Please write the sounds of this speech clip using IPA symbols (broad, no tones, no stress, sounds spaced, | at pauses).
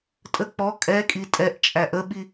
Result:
tʼ ə k͡p ɔ kʼ ɛ kʼ i tʼ ɛ ʔ t͡ʃʼ æ ʔ ə ɓ i